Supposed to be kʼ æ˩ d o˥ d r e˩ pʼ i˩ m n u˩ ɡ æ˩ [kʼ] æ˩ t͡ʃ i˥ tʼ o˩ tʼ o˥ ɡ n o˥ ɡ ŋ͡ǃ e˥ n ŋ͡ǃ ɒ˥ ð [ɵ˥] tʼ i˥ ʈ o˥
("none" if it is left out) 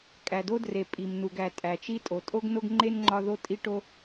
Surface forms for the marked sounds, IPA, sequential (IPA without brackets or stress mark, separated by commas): tʼ, o˥